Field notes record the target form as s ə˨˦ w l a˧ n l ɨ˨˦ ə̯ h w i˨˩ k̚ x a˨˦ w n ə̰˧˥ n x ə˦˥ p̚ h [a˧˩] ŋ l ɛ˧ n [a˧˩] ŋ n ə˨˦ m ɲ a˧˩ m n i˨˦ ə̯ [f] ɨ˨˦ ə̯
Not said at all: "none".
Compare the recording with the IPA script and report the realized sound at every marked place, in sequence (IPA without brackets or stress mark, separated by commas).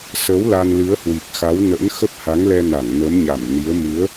a˨˦, a˧˩, m